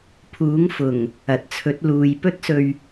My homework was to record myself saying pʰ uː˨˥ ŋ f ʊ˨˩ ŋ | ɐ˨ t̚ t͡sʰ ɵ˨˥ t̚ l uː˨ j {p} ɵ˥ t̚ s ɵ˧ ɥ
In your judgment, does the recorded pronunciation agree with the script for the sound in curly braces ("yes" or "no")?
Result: yes